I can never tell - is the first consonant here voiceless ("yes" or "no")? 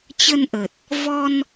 yes